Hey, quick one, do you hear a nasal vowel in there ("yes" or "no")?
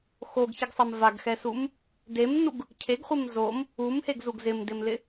no